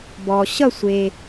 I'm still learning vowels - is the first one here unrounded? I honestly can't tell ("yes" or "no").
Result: no